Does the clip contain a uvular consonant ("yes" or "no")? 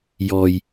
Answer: no